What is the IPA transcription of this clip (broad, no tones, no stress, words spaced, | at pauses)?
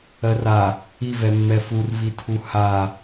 ɜra | i vɛmːɛfur vitʰuha